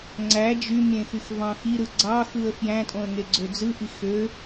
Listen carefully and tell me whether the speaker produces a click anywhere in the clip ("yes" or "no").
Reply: yes